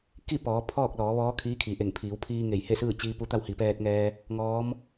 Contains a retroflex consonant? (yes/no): no